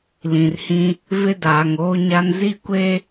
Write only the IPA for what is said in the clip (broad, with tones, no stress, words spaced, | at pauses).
lĩ˨rhĩ˦ | vɪ˦ daː˨ŋoː˦ɲa˦n zi˦kʷe˦